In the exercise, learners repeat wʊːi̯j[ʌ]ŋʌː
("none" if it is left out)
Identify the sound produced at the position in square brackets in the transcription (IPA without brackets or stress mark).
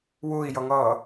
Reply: ʌ